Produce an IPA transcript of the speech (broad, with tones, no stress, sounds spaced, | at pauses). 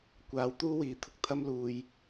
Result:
kʷ aː˨˧ w t̪ uː˥ w iː˨˧ t̪ʰ ʊ˨ k̚ t̪ʰ ɐ˥ m l uː˨ j